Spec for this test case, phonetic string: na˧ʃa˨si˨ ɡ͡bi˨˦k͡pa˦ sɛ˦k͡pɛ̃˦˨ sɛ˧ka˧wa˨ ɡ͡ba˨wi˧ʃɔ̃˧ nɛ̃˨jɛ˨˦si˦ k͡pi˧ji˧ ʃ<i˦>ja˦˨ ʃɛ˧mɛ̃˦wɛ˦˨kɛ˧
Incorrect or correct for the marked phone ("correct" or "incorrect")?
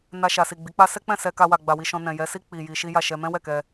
correct